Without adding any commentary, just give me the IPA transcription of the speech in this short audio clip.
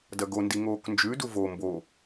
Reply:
d ɐ ɡ o n d i ŋ oː k n d͡ʒ ʉ d u v o m b o

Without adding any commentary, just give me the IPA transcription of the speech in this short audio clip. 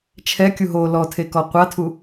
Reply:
t͡ʃʰ ɛ kʲ u ɦ o l ɔ tʰ e k ɔ qʷ a tʰ u

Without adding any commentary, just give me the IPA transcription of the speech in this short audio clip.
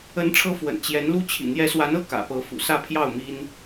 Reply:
ə˧˥ n ʈ͡ʂʰ ɤ˧˥ f w ə̰˨˩ n t͡ɕ j ɛ˧˥ n l u˥ t͡ɕʰ ḭ˨˩ n̪ j ɛ˧˥ s w a˧˥ n ɤ˥˩ k ä̰˨˩ p ɤ˧˥ f ṵ˨˩ s ä˥˧ pʰ j ɑ˥˩ ʊ̯ m i˥ n

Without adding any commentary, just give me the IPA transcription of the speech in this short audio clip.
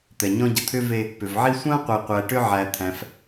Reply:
t̪ ɛ˩ ɲ ɔ̃˦ ɟ ə˨ t̪ʰ ʏ˥ v e˦ | p ʏ˩ v ʕ i˦ sʷ ã˥ qʷ e˨ qʷ æ˨ ʈ ʏ˦ ʕ æ˨ t̪ʰ æ̃˨ f

